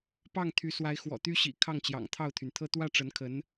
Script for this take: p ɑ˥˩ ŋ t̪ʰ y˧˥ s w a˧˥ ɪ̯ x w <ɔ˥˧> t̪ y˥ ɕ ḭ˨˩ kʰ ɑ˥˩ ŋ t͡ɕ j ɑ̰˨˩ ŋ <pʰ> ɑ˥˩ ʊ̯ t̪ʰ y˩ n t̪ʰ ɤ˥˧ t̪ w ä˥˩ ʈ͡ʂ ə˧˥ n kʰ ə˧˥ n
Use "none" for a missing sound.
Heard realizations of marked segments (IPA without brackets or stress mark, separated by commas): ɔ̰˨˩, t̪ʰ